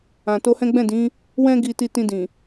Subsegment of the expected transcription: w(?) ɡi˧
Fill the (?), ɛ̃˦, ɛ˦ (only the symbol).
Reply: ɛ̃˦